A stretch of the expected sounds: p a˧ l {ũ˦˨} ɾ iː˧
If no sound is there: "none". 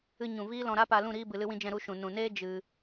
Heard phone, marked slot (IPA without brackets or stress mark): ũ˦˨